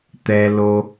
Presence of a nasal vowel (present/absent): absent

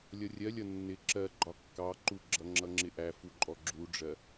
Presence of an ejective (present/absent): present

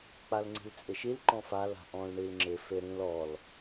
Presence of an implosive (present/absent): absent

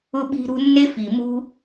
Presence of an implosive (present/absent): present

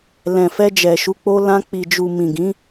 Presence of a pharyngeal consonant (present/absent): absent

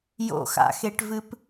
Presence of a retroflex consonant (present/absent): present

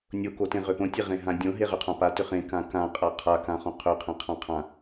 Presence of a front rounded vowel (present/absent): present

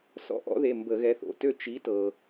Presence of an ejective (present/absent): absent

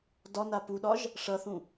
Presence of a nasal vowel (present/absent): present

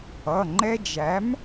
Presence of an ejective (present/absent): absent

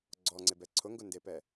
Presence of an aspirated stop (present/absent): present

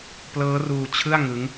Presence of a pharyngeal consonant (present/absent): absent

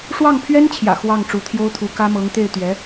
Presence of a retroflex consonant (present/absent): present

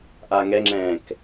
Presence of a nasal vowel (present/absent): present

